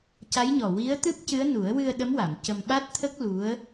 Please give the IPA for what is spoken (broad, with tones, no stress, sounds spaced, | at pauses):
c a˧˥ j ɲ ɔ˨˩ w i˧˥ ə̯ t̪ ɨ˦˥ p̚ c ɨ˧˥ ə̯ n u˨˩˦ ə̯ w ɨ˧ ə̯ ɗ ə˧˥ m w a˨˩˨ m c ə˧ m ɓ a˦˥ t̚ t̪ʰ ə˦˥ k̚ l u˧˥ ə̯